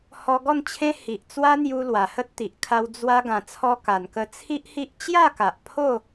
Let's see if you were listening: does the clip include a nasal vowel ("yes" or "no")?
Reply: yes